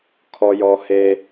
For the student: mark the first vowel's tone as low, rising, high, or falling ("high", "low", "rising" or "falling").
high